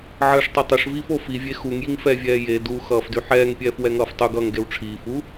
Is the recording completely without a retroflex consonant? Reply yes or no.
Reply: no